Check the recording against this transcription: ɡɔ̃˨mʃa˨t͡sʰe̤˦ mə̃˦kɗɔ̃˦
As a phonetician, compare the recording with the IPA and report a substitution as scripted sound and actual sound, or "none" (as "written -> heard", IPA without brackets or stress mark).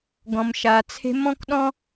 ə̃˦ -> ɔ̃˦